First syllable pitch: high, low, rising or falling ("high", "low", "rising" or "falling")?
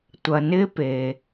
low